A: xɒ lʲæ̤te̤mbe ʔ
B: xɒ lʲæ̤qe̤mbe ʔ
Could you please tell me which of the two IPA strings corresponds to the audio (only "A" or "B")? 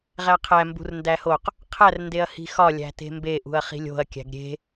A